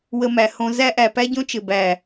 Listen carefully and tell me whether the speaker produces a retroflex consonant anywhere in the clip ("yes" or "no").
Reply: no